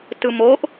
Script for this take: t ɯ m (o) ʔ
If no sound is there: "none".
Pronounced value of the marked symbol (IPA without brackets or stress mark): o